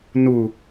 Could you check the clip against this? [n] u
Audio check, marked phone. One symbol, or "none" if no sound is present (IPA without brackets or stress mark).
n